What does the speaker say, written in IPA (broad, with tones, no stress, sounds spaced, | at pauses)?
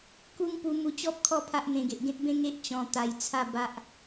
k u˦ ŋ p u˧ m u˧ t͡ɕ ɔ˦ p̚ kʰ ɔ˥˧ pʰ a˦ ʔ n̪ ẽ˧ ɡ e˨ ʔ ɡ ẽ˦ t̚ b ẽ˦ ŋ e˦ ʔ t͡ɕ ɔ̃˧ t̪ a˧ j t͡sʰ a˥˧ b a˦ ʔ